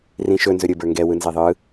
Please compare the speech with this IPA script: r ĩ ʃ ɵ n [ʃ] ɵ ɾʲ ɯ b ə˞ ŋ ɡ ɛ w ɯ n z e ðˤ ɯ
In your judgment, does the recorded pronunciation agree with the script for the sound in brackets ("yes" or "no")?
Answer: no